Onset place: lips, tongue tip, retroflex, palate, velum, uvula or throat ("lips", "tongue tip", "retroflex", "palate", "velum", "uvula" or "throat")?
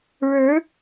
retroflex